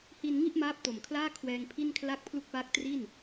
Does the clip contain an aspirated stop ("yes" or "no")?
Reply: yes